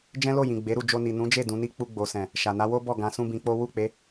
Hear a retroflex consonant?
no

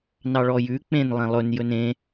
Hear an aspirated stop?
no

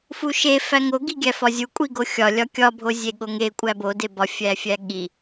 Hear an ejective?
yes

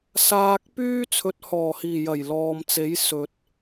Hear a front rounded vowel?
yes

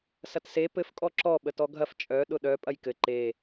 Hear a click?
yes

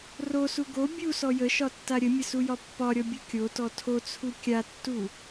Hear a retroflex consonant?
no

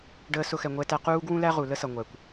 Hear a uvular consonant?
yes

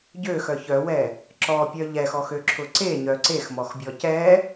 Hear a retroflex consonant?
no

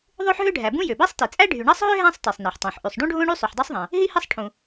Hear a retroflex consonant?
yes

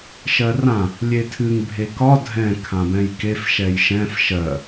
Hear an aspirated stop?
yes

